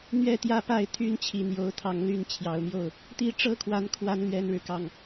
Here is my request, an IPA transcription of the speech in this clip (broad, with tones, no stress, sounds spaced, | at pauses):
n̪ ɥ ɛ˥˨ t̪ j ä˥˨ p a˥˨ ɪ̯ t̪ʰ y˦ n t͡ɕʰ i˨˦ n̪ j o˨˦ ʊ̯ t̪ʰ ɑ˨˦ ŋ l y˥˨ n t͡ɕʰ j ɑ˨˦ ʊ̯ m j o˥˨ ʊ̯ | t̪ i˥˨ ʈ͡ʂ ɤ˦ kʰ w a˨˦ n kʰ w a˨˦ n l ɥ ɛ˦ n ɻ ɻ̩˨ k ɑ˥˨ ŋ